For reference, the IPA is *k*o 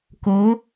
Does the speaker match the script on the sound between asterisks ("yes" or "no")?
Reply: yes